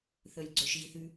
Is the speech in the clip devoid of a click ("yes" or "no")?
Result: no